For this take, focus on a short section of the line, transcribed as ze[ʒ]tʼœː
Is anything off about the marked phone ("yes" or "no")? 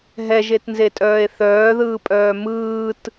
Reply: yes